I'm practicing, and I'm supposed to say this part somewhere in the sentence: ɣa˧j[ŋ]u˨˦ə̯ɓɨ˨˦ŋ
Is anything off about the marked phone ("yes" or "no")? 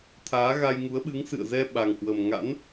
no